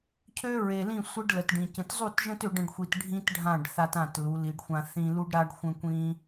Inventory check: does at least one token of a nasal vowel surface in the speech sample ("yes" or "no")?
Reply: yes